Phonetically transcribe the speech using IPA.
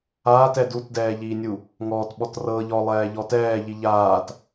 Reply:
aː t ɛ d u t d ɛː ʎ iː nʲ u | ŋ ɔː t ɓ ɔ t r ɤ ʎ ɔ lˠ ɛː ʎ ɔ t ɛː ʎ i ʎ aː t

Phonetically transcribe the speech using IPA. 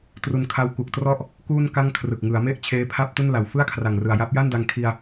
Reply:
t r u˧ n kʰ a˦˥ w k u˨˩ k̚ t r ɔ˥˩ ʔ | k uː˥˩ n k a˥˩ ŋ kʰ r ɯ˨˩ k̚ ŋ ɯ˩˦ a̯ m e˥˩ ʔ t͡ɕʰ eː˦˥ pʰ a˥˩ p̚ t u˥˩ n l a˨˩ w f ɯ˥˩ a̯ kʰ r a˨˩ ŋ r ɯ˨˩ a̯ j a˦˥ p̚ j a˥˩ n d a˧ ŋ kʰ i˧ a̯

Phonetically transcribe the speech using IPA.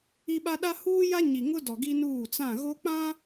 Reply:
i˦ ɓ a˦ ɗ a˦ h uː˦ j a˦ ɲ i˨ ŋ ʊ˦ d ɔ˨ ɡ i˦ n uː˦˨ t͡s ã˦˨ ɣ o˦ k͡p ã˦

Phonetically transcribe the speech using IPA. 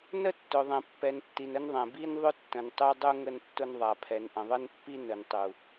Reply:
n ə˦ tː ʊ˨ ðˤ ɛ̃˨ pː ɛ˨ n tː i˨ n ə˦ n ðˤ ɛ̃˨ b i˦ n ðˤ ʊ˦ tː ə̃˨ n tˤ u˦ dˤ u˦ ŋ ə˦ n tː ʊ˦ n ðˤ a˨ pʰ ɛ˨ n ʔ ə̃˨ ðˤ ə˦ n pː i˦ n ə˨ n tˤ u˨

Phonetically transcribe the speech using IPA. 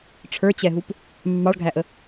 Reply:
ʈ͡ʂʰ ə˞ t͡ɕ ɛ ɦ u p | mː ɑ ɭ ɡʱ æ ʔ ə

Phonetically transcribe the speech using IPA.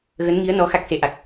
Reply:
ɣ ə˨˦ n ŋ i˨˦ ə̯ n ɔ˨˦ x a˦˥ k̚ s e˨˦ ʔ a˨˩ k̚

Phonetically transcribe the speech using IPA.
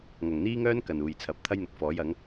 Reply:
ŋ ɐ˨˩ ŋ n̪ iː˥ ŋ œː˥ n k ɐ˨ n uː˨˩ j t͡sʰ ɐ˨˥ p̚ t̪ʰ ɐ˥ j n̪ ʊ˨˥ k̚ f ɔː˨˥ j ɐ˨˥ ŋ

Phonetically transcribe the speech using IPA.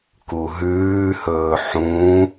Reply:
k u ɦ ʉː h ɵː ħ ũ

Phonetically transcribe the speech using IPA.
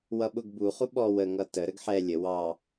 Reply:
w ʌ ɓ ʊ ɡ b u χ u ɓ ɔ w ə ŋ ʌ t ə ɾ ə ɡ ħ ɛ lʲ ə w ɑ

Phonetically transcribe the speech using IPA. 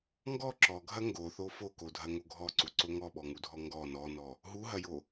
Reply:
ŋ ɡ ɔ ǁ ɔ ɡʱ ɐ ŋ ɡ o θ o f o k o dʱ ɐ ŋ o ɡʱ ɔ ǀ u ǀ o ŋ ɔ ɓ ɔ ŋ u dʱ ɔ ŋ ɡ ɔ n ɔ n ɔ | ɦ u ɦ ɐ j o

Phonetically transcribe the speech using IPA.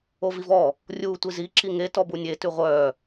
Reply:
o v i v ɔ | rʲ uː tʷ i z i ǁ i ŋ e t ɔ b u nʲ e t ʉ ʁʷ œː

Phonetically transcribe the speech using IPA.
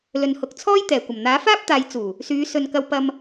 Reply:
l ɵ˨ n h ʊ˨ k̚ t͡sʰ ɔː˥ j t̪ ɛː˨˩ kʷ ɐ˨˩ m n̪ aː˨˥ f aː˥ p̚ t̪ aː˨˧ j t͡s uː˨˩ | s yː˨˧ s ɵ˨ n k ɐ˧ w p ɐ˧ m

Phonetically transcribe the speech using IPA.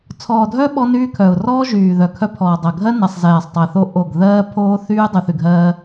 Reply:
t͡sʰ ɔː˨ dʱ œ˦ ɓ ɔ˦ n yː˦ kʰ œ˨ ʊ̯ r ɔː˦ ʒ yː˨ ð œ˨ kʰ œ˦ pʰ ɔː˨ dˤ ɜ˨ ɡʱ ɜ˦ n ɛ˨ sˤ z ɛː˨ sˤ tˤ ɛ˨ θ o˦ ʔ o˦˨ ɡ ð ɜː˦ pʰ oː˦ θ yː˦ dˤ y˨ θ y˨ ɡʱ ɜː˦

